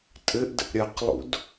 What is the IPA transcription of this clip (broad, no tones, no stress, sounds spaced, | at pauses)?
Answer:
tʼ ɘ ʔ d ə̰ ʔ ɾʲ ɐ q lˠ ṵ d